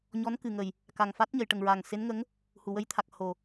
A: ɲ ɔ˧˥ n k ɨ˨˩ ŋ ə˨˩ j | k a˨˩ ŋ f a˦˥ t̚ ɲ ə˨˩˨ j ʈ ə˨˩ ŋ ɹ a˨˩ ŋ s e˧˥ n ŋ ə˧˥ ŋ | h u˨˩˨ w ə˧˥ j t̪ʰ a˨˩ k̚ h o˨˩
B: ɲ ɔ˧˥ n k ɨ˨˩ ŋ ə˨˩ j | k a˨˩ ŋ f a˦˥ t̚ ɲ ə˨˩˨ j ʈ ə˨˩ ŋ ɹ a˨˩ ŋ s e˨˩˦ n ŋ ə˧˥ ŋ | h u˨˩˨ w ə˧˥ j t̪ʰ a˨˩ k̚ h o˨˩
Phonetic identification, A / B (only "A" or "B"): A